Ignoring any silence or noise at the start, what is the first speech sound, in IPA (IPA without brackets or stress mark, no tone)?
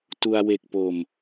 t